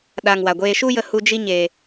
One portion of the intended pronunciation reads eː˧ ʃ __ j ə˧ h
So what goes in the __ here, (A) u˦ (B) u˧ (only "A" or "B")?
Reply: A